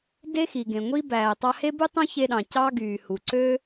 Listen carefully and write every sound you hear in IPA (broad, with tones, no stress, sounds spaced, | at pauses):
d e˥ x i˩ ɡ ẽ˩ ŋʷ i˥ b æː˩ tˤ ɑ˥ h e˥ b ɯ˥ tˤ õ˥ ç e˥ ɗ ɑ̃˩ c ɑ˥ ɡ yː˩ h u˩ ǀ ø˥